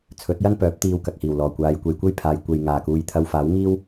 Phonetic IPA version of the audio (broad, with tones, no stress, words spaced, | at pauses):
t͡sʰɵ˨˥t̚jɐ˥npœː˨˥p̚ t̪iː˧w kɐ˨k̚hiː˨˩wlɔː˨˩ kʷaː˨˧jkʷe˨˧jkʷe˥jpʰaː˨j kʷe˨jŋaː˨˩kuː˨jt̪ʰɐ˧w faː˨˥wŋiː˥w